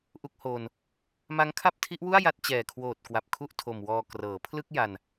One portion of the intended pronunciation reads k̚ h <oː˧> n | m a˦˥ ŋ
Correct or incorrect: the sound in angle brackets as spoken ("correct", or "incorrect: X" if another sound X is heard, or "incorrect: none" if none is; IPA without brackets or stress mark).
correct